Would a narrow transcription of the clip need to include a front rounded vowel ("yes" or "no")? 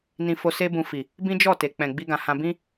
no